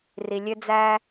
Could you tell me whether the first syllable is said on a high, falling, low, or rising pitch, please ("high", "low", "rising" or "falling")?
low